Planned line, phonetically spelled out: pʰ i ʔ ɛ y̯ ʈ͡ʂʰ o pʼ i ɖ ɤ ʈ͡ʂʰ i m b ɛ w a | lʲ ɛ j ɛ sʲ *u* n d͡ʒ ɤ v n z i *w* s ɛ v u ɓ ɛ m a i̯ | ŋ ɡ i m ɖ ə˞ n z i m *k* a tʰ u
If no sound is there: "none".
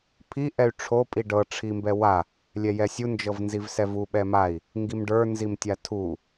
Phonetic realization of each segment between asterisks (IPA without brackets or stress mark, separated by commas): u, v, tʲ